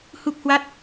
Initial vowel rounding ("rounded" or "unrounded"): rounded